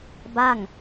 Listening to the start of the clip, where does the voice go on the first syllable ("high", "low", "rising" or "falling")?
falling